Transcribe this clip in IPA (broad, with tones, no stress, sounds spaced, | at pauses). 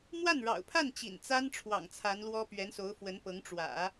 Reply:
m w a˥˩ n ɻ ɑ̰˨˩ ʊ̯ pʰ a˥˩ n t͡ɕ ḭ˨˩ n t͡s a˥ n ʈ͡ʂʰ w ɑ̰˨˩ ŋ t͡sʰ a˧˥ n l w ɔ˥ p ɥ ɛ˧˥ n s o˧˥ ʊ̯ f w ə˧˥ n p ɤ˧˥ ŋ ʈ͡ʂ w ä̰˨˩˦